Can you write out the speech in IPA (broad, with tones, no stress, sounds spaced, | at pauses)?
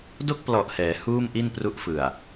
d o˥˩ k̚ p l ɔ˨˩ ʔ h ɛː˩˦ h uː˥˩ m ʔ i˥˩ n p r u˦˥ ʔ f ɯ˨˩ a̯